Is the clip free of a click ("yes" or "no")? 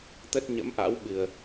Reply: yes